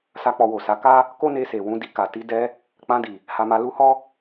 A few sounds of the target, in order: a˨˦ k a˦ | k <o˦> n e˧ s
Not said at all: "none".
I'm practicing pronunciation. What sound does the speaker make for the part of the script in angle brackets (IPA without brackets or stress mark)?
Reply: o˦